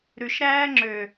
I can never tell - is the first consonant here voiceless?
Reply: no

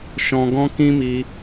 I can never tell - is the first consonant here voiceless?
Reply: yes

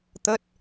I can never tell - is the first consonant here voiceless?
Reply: yes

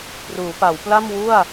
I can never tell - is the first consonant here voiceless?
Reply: yes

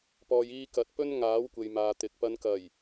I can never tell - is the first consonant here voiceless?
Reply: yes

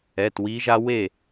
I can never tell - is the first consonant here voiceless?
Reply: yes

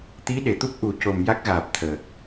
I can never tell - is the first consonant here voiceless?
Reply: yes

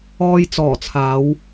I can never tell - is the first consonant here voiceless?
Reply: no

